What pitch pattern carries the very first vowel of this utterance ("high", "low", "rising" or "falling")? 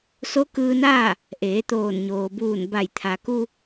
rising